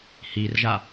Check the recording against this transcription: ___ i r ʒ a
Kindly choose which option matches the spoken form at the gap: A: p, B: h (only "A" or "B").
B